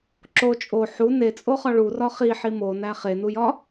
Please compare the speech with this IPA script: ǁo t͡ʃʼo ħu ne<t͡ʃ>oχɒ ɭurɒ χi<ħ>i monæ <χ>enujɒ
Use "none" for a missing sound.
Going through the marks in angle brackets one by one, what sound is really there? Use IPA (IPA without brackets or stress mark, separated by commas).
t͡sʼ, ħ, χ